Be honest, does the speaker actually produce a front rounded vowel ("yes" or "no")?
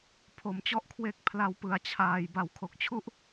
no